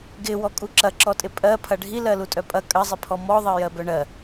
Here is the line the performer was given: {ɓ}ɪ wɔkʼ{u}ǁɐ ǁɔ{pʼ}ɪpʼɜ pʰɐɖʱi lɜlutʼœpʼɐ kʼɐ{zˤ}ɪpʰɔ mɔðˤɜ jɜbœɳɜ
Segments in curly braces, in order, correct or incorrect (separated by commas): incorrect, correct, incorrect, correct